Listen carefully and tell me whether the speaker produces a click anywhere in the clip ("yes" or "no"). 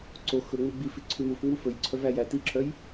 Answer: yes